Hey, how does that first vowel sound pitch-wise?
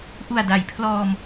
low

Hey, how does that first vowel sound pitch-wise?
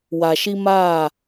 low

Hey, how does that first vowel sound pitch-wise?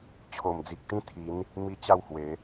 low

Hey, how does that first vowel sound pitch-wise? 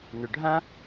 low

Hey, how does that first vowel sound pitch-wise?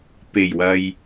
low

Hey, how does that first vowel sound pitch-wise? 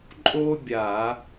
high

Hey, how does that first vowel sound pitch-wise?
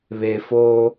low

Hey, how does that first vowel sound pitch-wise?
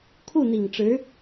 falling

